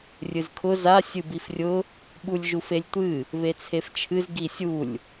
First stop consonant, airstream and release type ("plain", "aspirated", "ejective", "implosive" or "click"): aspirated